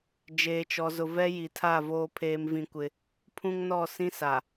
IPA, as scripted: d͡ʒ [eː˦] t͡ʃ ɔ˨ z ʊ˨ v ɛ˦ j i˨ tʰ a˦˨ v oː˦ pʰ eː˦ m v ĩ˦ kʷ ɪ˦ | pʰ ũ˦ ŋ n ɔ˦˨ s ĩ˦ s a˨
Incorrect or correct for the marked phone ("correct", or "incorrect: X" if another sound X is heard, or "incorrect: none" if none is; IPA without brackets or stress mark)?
incorrect: eː˨